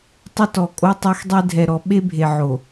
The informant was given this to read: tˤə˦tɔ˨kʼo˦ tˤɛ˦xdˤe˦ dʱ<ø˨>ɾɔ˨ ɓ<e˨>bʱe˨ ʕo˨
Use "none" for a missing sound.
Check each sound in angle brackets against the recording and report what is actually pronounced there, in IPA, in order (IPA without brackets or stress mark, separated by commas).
ɛ˨, e˦